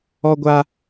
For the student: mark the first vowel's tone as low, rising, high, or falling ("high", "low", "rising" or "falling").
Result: high